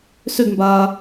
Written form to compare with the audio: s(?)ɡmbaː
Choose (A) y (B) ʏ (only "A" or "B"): B